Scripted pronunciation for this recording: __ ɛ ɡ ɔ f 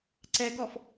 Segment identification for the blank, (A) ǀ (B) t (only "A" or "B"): A